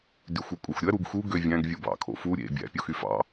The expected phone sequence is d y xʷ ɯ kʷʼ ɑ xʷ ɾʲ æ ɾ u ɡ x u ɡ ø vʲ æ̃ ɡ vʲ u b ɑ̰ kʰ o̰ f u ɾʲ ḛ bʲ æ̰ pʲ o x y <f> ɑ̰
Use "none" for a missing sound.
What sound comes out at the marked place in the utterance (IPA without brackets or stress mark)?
f